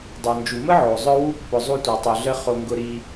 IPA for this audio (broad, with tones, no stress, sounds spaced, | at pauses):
dˤ o˨ n d͡ʒ u˨ m ə˦ ʕ o˨ zˤ œ˦ w u˦ pː ʊ˧ zˤ u˦ tʷ œ˧ tˤ œ˧ ɮ ə˦ χ o˧ ŋ ɡ ʊ˦ ɾ i˦